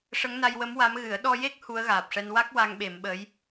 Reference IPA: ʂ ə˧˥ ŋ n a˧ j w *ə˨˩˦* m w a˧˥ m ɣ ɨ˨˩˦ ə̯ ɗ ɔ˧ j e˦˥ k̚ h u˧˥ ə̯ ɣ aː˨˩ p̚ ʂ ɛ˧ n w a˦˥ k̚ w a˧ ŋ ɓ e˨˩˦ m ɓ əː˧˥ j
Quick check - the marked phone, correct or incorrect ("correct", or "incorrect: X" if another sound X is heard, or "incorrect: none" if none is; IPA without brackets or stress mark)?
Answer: incorrect: ə˧˥